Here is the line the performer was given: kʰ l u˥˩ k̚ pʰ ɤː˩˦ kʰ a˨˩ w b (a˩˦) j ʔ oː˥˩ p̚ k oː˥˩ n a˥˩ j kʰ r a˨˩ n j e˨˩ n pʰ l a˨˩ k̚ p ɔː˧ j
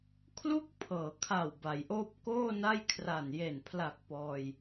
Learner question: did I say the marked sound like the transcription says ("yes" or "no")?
yes